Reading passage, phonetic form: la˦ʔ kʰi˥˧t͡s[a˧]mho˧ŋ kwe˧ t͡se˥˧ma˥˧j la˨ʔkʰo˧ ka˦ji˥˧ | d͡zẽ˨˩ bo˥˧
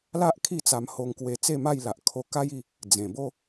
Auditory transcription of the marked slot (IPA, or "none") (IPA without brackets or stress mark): a˧